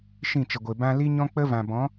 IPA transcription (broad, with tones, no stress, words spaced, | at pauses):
ʃĩ˦˨t͡ʃə˨ɡʷe˨ bã˧ li˦ɲɔ̃˦ k͡pə˦vã˨bɔ̃˨˦